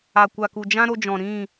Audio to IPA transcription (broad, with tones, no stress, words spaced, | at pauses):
a˨kʷa˨ku˨ d͡ʒã˦ɾo˧d͡ʒɔ̃˨ ɾĩ˦˨